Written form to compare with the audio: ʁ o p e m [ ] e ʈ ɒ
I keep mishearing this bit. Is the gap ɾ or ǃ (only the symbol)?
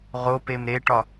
ɾ